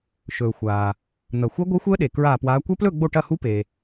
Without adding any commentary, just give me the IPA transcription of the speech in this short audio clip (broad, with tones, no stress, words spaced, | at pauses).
ʃɵː˨xʷaː˨ | n̪ɐ˨xʷə˦˥ɡʷəː˦˥xʷəː˦˥ ɗe˨ kɹaː˥˧pwaː˦˥ kʷɐ˦˥plɵ˥˧ ɡ͡bo˥˧ʈɐ˥˧hu˦˥ pe˨